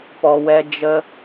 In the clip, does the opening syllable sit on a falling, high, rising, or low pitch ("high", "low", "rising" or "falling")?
low